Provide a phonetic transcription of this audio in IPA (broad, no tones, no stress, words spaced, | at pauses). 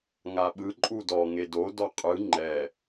ŋaɓɯǃʼu dɔ ŋedodɔ qʼɯ ŋ͡ǃɛ